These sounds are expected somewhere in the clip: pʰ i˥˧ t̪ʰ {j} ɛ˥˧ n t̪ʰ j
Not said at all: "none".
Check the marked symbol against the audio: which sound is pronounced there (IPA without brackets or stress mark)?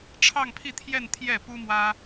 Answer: j